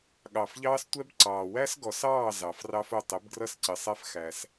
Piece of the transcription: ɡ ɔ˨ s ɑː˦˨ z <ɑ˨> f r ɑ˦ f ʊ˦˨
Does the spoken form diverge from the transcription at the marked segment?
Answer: no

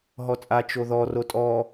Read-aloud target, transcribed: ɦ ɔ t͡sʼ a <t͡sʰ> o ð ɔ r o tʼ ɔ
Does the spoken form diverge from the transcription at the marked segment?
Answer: yes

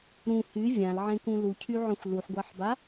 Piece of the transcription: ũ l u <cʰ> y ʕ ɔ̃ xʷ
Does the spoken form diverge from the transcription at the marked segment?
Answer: no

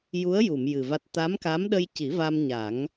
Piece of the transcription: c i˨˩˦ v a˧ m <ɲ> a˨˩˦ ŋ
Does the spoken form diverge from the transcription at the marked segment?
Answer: no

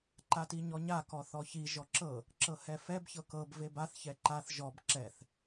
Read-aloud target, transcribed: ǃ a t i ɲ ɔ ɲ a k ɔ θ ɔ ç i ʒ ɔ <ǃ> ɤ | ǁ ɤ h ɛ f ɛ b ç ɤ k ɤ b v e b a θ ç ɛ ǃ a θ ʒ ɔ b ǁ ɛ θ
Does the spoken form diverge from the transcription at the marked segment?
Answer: yes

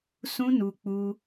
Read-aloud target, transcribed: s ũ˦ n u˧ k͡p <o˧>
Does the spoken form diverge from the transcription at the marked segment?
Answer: yes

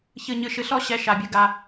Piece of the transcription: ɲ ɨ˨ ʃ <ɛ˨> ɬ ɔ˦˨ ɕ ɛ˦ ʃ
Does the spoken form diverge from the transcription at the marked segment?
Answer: yes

